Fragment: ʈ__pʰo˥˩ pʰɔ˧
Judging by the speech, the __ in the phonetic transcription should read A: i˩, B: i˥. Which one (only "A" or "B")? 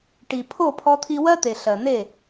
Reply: A